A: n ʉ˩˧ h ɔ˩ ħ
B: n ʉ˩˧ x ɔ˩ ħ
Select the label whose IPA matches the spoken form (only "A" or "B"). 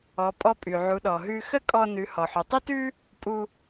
A